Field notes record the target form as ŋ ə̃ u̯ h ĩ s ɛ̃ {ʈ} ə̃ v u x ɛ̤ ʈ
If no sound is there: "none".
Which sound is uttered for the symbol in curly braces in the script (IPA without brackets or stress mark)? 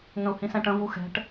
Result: ʈ